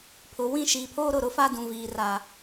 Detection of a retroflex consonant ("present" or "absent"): absent